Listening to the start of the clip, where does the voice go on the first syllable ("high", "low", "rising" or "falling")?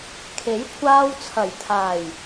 rising